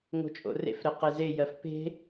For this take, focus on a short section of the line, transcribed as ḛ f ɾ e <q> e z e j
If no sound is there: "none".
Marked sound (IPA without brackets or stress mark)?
q